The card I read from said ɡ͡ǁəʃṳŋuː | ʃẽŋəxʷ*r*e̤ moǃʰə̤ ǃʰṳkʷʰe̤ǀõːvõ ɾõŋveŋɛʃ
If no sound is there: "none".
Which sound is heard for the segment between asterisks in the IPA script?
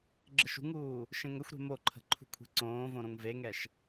ɾ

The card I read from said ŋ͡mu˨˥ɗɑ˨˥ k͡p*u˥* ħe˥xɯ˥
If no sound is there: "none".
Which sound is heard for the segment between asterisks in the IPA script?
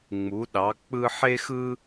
ɯ˥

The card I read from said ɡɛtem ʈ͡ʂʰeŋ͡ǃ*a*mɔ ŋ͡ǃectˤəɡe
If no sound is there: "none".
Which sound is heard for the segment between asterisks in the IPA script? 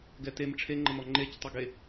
ə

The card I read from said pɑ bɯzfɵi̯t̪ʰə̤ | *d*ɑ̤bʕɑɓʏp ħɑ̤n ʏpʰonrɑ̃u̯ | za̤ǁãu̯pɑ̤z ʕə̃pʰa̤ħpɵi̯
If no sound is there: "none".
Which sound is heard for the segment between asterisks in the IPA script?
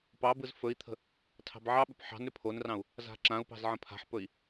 tʰ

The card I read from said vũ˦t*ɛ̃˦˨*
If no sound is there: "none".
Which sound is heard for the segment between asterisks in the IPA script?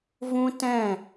ɛ̃˦˨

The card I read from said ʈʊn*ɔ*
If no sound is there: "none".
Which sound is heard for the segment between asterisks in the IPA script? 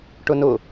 ʊ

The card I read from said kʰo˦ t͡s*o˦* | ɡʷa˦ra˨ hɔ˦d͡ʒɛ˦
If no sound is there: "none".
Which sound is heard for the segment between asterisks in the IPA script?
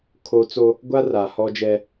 o˦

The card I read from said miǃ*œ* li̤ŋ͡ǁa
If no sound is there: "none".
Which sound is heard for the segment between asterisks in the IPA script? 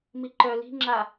œ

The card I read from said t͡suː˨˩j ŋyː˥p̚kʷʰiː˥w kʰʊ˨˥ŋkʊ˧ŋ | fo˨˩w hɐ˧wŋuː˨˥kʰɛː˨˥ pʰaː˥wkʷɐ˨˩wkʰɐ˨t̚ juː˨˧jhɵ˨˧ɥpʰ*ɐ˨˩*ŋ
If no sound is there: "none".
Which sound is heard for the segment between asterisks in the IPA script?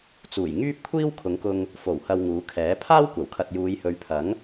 ɐ˨˥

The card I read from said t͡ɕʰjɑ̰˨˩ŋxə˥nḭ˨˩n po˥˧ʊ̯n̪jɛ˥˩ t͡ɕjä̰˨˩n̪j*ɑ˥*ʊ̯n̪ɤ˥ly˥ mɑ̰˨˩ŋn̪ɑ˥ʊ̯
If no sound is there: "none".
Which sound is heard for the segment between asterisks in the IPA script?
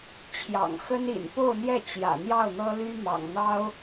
ɑ˥˩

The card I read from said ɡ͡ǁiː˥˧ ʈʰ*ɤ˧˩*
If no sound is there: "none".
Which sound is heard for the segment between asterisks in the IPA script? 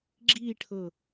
ɤ˧˩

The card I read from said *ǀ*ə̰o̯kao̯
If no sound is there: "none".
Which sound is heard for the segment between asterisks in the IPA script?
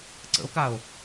ǀ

